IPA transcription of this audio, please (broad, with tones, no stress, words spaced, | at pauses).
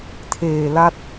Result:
tʰeː˨˩la˦˥t̚